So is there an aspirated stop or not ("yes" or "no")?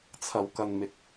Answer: yes